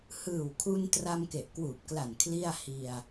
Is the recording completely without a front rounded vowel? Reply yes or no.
yes